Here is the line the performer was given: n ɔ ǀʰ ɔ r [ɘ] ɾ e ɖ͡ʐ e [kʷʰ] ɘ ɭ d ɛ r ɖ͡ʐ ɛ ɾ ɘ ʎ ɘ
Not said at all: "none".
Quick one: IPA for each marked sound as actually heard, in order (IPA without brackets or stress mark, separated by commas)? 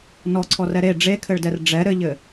ɛ, kʰ